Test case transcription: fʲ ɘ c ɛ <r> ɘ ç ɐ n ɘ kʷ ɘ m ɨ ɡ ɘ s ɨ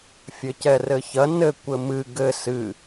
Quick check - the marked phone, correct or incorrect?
correct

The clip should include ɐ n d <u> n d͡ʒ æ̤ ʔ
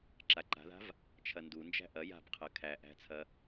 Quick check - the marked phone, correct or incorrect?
correct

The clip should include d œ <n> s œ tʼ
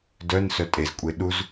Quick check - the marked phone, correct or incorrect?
correct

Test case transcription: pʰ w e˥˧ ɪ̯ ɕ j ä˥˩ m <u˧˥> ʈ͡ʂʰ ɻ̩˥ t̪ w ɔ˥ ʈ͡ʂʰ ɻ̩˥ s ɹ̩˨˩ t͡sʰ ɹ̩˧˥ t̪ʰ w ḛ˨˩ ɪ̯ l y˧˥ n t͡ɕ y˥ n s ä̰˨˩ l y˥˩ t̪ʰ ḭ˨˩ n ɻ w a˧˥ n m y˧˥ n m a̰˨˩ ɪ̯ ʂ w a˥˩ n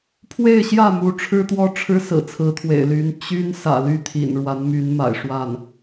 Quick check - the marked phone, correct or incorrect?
correct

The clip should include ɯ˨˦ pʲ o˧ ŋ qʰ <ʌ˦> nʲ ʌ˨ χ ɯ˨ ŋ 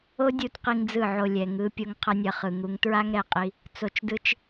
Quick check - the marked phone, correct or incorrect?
incorrect: ʌ˧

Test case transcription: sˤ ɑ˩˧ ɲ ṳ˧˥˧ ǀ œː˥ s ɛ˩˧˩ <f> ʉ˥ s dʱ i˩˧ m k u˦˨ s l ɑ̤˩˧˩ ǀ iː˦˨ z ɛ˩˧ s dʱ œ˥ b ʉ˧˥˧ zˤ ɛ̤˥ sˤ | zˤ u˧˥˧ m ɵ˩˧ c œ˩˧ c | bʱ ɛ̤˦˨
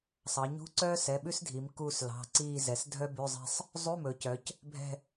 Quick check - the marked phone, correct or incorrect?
incorrect: ɓ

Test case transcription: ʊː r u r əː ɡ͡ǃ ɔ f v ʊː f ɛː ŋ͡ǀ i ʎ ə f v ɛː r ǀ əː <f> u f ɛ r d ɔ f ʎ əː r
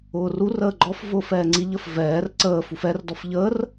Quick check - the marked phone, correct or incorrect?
correct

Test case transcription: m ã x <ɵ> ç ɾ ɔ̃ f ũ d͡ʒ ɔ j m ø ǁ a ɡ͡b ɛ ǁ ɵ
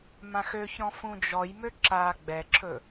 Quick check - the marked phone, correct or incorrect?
incorrect: ø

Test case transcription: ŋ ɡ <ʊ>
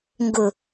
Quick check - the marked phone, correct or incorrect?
correct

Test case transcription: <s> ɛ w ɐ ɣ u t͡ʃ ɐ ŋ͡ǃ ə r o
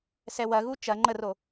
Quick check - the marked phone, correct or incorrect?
correct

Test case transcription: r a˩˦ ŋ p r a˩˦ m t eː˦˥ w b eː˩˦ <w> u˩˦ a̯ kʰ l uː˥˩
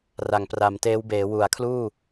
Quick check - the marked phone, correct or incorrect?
correct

